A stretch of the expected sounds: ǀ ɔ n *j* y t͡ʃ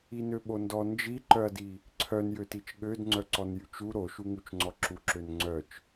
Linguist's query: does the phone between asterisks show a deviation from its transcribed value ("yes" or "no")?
no